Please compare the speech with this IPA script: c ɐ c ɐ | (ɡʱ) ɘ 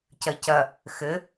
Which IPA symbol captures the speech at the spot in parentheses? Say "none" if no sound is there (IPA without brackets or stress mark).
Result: x